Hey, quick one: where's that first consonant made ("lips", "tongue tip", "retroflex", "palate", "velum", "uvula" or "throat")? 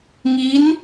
velum